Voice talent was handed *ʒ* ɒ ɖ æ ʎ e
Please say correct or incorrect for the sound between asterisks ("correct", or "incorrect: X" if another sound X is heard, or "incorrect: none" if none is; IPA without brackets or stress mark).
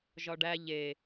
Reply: correct